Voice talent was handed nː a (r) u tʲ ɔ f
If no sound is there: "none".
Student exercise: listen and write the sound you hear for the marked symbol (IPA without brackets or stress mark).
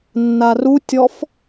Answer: r